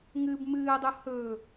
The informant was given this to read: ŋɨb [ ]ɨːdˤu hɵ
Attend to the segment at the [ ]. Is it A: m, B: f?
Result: A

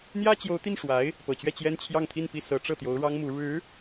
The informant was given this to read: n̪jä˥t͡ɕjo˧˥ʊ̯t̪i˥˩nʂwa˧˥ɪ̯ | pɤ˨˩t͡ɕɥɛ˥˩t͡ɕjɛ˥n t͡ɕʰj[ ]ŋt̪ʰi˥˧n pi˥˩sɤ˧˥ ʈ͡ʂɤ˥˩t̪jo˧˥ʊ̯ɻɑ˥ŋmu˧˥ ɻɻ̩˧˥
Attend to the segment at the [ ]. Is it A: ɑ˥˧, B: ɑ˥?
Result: A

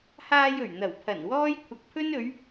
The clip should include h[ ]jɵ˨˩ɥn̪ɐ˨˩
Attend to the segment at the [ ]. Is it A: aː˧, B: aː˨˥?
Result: A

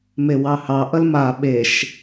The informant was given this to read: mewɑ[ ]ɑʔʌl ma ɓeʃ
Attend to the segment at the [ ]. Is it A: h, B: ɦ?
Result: A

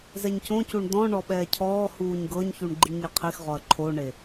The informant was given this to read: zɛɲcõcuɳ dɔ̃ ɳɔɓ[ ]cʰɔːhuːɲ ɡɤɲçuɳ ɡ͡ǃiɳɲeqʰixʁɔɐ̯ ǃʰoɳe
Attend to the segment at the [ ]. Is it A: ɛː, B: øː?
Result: A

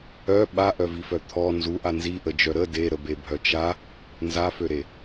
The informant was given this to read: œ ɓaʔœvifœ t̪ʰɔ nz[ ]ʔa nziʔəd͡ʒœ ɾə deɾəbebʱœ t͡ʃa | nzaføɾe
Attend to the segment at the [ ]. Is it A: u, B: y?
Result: A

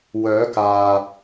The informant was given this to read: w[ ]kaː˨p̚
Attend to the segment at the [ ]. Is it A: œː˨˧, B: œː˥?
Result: A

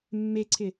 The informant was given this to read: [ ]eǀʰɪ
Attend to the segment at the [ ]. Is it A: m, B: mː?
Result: B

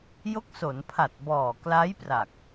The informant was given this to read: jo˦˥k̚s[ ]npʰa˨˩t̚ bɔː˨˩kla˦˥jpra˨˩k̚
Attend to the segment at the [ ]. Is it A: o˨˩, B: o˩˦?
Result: B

